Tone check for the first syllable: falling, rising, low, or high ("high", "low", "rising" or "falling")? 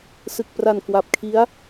low